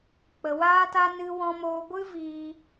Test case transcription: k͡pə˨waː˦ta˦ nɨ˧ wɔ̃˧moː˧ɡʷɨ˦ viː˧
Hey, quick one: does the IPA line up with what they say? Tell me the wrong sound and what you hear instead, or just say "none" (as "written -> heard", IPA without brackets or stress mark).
none